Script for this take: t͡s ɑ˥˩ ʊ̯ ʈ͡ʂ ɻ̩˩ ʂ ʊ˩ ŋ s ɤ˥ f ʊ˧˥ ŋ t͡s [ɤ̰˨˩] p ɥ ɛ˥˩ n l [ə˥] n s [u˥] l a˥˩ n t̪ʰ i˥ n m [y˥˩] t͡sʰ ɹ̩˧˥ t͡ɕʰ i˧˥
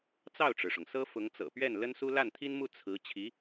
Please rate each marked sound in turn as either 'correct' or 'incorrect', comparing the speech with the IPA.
correct, correct, correct, incorrect

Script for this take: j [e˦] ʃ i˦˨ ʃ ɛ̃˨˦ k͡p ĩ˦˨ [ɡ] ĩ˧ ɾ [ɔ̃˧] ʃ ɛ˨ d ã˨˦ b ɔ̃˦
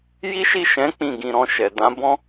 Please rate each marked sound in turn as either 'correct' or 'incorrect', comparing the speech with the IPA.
incorrect, correct, correct

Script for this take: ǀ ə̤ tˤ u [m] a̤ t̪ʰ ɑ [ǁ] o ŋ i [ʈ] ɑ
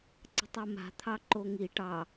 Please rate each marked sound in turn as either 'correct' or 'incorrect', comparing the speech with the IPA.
correct, incorrect, correct

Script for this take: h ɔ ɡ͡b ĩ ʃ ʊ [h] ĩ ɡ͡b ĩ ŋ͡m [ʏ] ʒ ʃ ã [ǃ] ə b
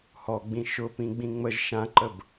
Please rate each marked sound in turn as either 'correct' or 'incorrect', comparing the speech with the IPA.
incorrect, incorrect, correct

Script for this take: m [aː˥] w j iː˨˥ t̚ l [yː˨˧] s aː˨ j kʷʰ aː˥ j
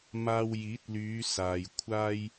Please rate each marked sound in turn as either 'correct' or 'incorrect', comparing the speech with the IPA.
incorrect, correct

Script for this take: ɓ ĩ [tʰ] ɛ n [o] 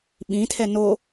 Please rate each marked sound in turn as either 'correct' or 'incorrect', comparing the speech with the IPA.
correct, correct

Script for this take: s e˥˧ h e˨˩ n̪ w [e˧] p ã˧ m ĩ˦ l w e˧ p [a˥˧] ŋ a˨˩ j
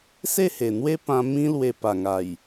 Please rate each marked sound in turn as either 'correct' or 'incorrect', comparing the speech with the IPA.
incorrect, incorrect

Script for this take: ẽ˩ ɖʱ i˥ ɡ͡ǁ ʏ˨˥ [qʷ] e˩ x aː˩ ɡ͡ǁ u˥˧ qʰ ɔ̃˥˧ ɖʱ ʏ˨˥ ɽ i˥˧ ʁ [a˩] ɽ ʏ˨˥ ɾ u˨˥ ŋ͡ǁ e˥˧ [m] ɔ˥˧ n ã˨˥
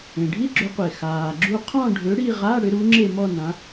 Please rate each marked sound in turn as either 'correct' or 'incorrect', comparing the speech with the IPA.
correct, incorrect, correct

